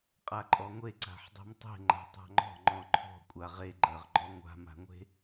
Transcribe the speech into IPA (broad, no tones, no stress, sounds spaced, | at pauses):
qʼ a ǃʼ ɔ ŋʷ e ǀ a̤ ħ dˤ e̤ m tˤ e̤ ŋ͡ǃ a̤ tˤ a̤ ŋ͡ǃ ɔ̤ ŋ͡ǃ ɔ̃ ǃʰ ɔ̤ kʷʼ a ʁ e ɡ͡ǃ ɜ ʁ ɡ͡ǃ ɔ ŋʷ a̤ m a̤ ŋʷ e̤